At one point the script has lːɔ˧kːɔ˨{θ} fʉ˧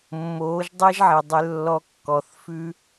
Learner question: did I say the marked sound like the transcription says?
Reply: yes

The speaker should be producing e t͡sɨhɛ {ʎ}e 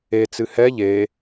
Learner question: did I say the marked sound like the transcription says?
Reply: yes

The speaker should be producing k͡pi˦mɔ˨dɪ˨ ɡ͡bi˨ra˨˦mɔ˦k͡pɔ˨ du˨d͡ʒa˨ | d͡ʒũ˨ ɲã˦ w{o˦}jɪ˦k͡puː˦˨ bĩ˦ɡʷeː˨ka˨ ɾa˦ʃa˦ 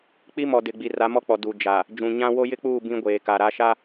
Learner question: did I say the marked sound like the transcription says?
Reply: yes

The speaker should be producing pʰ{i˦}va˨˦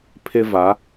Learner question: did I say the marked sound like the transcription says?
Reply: no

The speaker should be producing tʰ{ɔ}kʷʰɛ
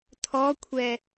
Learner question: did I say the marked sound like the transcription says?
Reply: yes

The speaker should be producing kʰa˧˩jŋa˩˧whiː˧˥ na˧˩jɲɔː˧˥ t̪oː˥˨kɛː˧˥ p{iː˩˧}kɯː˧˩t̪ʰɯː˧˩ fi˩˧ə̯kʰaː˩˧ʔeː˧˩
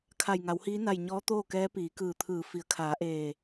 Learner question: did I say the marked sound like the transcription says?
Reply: yes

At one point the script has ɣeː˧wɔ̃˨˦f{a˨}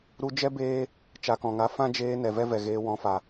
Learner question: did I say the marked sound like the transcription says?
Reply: yes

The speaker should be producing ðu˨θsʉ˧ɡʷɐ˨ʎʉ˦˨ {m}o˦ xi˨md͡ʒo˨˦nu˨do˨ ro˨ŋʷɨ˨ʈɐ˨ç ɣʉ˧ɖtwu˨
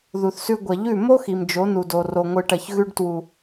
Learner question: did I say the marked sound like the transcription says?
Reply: yes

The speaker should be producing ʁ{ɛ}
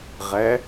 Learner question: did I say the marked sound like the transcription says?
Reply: yes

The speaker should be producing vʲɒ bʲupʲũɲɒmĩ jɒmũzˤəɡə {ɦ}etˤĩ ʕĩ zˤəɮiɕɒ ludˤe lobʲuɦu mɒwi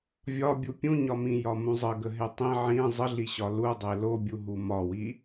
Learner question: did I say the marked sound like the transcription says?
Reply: yes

